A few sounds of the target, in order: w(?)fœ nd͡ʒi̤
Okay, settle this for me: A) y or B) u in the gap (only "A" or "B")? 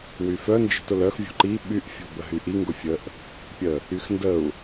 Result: A